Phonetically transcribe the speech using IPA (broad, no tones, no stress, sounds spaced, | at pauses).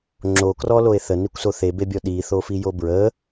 ŋ͡ǁ o k r ɔ l o e̯ θ ə n i kʷ s o θ e b e bʲ ɔ ɗ i θ o f i j o b ɹ ə